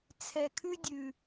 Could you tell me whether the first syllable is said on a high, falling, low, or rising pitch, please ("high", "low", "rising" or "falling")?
low